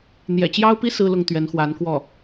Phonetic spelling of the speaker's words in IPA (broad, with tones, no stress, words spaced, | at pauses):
n̪jɛ̰˨˩t͡ɕjɑ˥ʊ̯pi˥ sɹ̩˥lʊ˥˩ŋ t̪ɥɛ˧˥nxwa˧˥nkwɔ˥˩